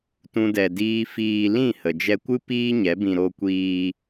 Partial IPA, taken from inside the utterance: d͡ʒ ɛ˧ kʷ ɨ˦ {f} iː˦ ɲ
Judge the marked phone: incorrect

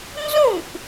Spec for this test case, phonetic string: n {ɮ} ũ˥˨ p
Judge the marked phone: incorrect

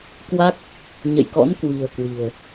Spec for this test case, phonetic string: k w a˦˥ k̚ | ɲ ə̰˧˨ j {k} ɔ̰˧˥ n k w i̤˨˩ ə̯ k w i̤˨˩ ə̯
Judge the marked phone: correct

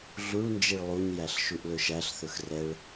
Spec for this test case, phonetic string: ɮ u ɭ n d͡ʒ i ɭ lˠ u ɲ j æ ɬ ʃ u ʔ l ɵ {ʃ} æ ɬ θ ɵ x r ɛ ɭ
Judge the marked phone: correct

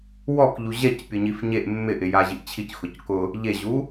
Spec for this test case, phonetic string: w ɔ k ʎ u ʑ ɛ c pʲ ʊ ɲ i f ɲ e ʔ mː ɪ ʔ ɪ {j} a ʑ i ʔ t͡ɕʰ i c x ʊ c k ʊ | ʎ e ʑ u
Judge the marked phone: correct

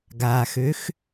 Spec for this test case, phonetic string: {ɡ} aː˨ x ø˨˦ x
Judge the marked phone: correct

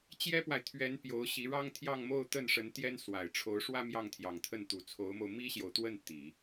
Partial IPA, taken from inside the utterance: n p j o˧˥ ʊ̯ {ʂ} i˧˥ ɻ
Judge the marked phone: incorrect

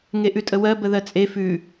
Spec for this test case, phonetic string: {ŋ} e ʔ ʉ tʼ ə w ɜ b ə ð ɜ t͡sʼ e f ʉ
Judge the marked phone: correct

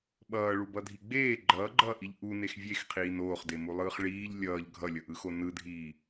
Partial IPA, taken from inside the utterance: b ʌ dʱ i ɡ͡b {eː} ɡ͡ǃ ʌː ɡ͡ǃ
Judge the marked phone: correct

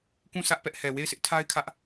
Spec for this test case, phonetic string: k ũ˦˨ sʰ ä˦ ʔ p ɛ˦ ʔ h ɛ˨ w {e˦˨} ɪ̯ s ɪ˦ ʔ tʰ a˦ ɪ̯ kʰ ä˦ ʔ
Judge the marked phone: correct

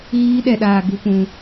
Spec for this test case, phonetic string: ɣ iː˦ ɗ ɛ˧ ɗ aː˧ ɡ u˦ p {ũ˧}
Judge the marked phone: correct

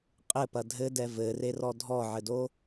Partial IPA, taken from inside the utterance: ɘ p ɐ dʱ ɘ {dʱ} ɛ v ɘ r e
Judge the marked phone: incorrect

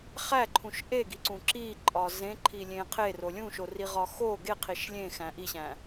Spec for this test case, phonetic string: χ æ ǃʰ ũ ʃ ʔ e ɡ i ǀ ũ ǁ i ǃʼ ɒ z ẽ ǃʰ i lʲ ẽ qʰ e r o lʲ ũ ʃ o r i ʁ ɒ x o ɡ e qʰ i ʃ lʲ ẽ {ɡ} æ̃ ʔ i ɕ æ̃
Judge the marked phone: incorrect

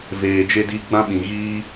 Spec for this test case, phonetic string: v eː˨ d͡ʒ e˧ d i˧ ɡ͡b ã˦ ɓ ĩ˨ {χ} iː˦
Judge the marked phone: incorrect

